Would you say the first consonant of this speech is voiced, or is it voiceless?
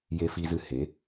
voiced